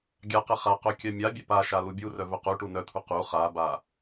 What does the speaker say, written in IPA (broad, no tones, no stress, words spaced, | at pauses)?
ɡʲaqɛ χaqœ kʲœmʲabʲɛ paʃa lubʲurœ vœquʈu nœt̪ʰu qu χaba